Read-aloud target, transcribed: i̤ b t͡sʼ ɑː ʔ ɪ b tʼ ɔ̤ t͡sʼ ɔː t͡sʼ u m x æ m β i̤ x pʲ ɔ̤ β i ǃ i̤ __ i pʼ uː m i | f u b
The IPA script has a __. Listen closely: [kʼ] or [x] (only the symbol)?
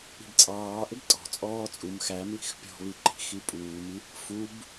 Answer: x